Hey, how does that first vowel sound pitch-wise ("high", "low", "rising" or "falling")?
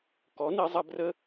rising